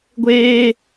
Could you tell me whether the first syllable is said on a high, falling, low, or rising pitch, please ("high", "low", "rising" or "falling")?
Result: high